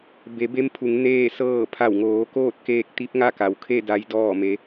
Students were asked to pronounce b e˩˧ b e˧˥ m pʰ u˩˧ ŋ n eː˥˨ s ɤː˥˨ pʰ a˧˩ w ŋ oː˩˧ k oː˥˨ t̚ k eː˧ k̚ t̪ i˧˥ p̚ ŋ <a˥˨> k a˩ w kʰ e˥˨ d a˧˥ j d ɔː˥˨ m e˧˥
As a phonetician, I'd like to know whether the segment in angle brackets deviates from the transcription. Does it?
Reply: no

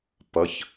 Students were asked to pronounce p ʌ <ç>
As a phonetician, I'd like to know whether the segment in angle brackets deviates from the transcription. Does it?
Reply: no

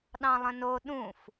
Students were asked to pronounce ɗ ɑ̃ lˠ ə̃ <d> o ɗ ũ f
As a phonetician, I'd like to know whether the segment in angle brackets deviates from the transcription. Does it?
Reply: yes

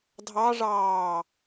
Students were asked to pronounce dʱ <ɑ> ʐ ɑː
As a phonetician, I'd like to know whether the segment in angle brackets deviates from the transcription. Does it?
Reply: no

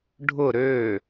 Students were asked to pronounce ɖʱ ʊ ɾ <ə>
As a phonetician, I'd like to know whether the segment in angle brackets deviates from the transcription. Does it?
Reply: yes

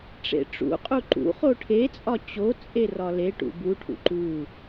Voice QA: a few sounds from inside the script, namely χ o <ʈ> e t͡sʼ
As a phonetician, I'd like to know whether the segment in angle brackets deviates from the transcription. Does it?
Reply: yes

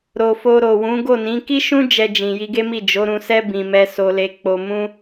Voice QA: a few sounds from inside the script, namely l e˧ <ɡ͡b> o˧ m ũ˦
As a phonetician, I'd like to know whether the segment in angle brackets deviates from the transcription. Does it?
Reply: yes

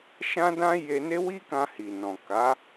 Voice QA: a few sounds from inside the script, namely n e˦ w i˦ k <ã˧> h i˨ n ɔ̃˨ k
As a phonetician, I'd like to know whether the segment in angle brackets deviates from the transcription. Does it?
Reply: no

